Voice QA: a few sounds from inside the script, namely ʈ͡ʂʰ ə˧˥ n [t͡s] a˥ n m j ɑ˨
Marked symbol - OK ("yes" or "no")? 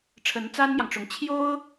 yes